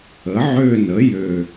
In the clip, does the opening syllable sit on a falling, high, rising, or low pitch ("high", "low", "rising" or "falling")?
rising